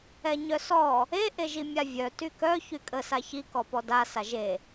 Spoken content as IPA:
ɛ ɲ œ s ɔ | e ʔ e ʒ i mʲ a vʲ œ t y k œ ç y kʼ ə s a ç i k ɔ p ɔ d a s a ʒ e

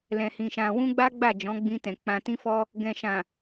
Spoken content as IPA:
l ɛ̃˨ h ĩ˨ ʃ ã˨ w ũ˧ ɡ͡b a˦ ɡ͡b a˦˨ d͡ʒ ɔ̃˨˦ ɡ͡b ĩ˧ t ɛ̃˨ k͡p ã˨ t ĩ˧ f ɔ˧ | ɡ ɛ̃˨ ʃ ã˨

